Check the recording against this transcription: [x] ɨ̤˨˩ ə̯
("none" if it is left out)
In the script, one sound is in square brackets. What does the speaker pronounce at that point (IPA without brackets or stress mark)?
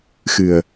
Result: x